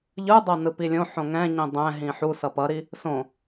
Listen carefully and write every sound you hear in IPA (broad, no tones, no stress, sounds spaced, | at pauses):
ʎ ɯ dˤ ʌ n ɯ p i lʲ õ ħ õ ŋ ɛ̃ ɲ ĩ dˤ ɛ̃ ɦ ĩ ħ u s ʌ p ʌ ɾ i | s õ